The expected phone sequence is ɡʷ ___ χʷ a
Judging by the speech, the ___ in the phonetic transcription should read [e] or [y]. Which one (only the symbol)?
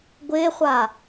e